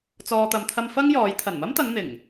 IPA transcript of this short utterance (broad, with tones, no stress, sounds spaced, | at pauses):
t͡s ɔː˨ t̪ ɐ˨ m t̪ʰ ɐ˧ m f ɐ˥ ŋ j ɔː˨˧ j t̪ʰ ɐ˨˩ n m ɐ˥ m t̪ ɐ˨˧ ŋ n̪ ɪ˨˩ ŋ